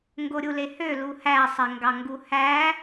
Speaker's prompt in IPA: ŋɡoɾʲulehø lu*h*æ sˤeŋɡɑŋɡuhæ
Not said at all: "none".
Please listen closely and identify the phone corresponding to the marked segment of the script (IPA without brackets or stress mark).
h